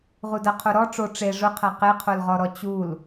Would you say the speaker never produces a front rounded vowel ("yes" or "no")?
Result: yes